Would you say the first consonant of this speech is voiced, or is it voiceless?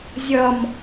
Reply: voiced